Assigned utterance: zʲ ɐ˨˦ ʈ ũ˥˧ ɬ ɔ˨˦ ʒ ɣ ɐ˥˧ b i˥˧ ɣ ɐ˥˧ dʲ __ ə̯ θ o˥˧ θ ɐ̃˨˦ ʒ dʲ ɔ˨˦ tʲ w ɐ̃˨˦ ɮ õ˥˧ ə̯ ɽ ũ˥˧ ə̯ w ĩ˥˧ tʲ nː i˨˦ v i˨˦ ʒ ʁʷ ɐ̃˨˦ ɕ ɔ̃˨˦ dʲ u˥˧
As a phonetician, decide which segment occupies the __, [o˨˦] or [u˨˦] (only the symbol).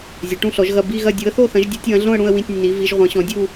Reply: u˨˦